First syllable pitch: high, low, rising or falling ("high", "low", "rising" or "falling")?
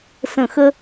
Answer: falling